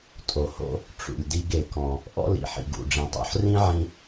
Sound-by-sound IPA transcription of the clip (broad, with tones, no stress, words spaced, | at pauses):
tʼo˩ho̰˧ | ʈ͡ʂṵ˩lʲdi˧ɡ e˩ kɔ̃˩ | ʔɔ̰˥lḭ˩ ħḭ˩ɡṵ˩ɖ͡ʐĩ˩ tˤo̰˧ħ rĩ˥ ʕĩ˧